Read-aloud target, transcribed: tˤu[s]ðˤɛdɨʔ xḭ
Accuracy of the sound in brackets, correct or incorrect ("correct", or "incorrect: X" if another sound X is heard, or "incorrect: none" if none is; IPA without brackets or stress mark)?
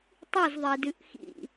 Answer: incorrect: z